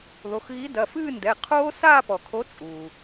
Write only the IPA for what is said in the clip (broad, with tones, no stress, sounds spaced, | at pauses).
ð o˩˧˩ x ɣ i˨˥ d ɐ˩˧˩ f ɨː˥˧ n d ɛ˩˧˩ qʰ oː˦˥ s aː˥˧ p ɔ˩ kʰ o˨˥ t͡sʼ uː˩